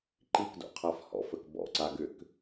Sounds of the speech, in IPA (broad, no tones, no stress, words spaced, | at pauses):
ǃikdo̰qʰaf hɔ̰fək bɔ̰ǀaɡʏk